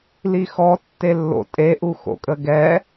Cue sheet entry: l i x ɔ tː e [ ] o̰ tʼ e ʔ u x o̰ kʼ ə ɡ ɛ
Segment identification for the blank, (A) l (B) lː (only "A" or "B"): B